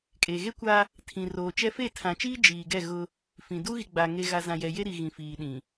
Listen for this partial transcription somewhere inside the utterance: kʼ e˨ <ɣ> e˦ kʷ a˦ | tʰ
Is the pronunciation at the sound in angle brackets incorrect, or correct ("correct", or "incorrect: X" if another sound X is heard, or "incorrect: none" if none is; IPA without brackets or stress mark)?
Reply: correct